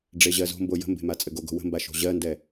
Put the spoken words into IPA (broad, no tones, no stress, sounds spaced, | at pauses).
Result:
ɖ͡ʐ e ʑ ɜ z o̤ m b o j ə̤ m b e̤ m a t͡sʼ ɘ ɡ o ɡ o̤ w ə̤ m b a ʃ o̤ ʑ ɜ n d ɛ